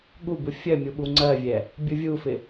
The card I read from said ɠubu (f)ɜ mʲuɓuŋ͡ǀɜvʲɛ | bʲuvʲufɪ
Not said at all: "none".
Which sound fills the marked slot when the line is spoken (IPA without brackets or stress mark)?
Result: fʲ